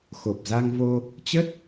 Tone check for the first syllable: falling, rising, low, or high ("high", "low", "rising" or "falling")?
low